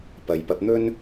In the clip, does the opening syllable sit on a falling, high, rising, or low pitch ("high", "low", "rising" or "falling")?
low